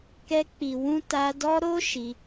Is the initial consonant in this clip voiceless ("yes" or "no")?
yes